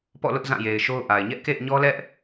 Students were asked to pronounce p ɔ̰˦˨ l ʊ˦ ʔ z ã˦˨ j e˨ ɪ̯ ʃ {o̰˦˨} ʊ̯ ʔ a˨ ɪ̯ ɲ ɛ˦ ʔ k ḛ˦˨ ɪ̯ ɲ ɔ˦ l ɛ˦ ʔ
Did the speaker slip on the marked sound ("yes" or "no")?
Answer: yes